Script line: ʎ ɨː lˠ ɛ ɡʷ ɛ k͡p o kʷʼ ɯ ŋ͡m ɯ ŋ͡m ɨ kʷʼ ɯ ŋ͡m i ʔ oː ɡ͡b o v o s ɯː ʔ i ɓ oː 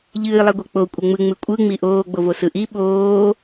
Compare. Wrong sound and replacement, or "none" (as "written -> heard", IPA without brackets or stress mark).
ɯː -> ɯ